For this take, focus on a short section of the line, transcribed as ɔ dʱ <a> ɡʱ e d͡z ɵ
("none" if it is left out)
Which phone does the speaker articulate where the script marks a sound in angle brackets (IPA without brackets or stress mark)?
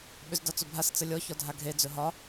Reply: a